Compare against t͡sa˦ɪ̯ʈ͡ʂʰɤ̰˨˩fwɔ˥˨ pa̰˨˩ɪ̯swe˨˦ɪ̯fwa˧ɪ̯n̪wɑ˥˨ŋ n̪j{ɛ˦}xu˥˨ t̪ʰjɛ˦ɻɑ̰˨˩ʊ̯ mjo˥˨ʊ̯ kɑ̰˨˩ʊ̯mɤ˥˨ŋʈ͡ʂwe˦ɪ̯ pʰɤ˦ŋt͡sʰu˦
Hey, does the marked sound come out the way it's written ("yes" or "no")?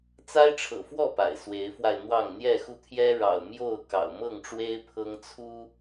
no